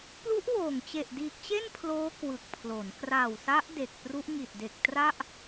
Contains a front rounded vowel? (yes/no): no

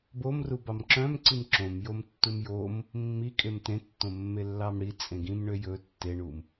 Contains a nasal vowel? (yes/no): yes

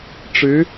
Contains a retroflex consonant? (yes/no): yes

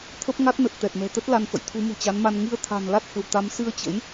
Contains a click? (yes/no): no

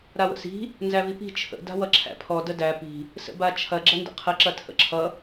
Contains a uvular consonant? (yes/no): yes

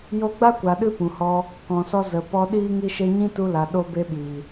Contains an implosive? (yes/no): yes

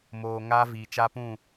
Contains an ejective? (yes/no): no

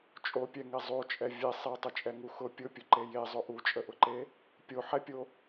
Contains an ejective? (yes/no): yes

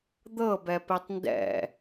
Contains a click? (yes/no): no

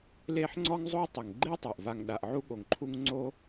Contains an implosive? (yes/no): yes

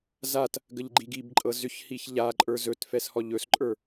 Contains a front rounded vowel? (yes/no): yes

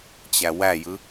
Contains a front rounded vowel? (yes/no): no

